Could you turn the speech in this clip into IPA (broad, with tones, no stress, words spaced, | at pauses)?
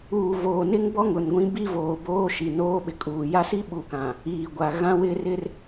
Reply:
uː˨voː˨nɪ˦ŋbɔ˦ ŋʊ˨nɡʷĩ˦bi˦ voː˨boː˦ʃi˨noː˦ ɓɪ˨kʼuː˨ ja˦si˦ɓu˨kã˨ | iː˨ɡʷa˨ ɣã˦wɪ˦ rɪ˦r